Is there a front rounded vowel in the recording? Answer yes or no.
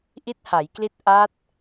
no